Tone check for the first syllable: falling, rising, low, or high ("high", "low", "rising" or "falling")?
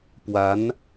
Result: rising